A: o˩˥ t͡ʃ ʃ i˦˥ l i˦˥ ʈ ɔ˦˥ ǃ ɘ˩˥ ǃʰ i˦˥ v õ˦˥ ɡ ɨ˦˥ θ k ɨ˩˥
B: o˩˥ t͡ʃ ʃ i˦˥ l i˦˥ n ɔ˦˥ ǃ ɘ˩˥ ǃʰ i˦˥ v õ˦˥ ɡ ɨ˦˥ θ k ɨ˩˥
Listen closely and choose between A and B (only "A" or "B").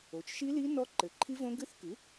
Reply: B